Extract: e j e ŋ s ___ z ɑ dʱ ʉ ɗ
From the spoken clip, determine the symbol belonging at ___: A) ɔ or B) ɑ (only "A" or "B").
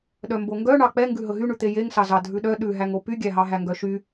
B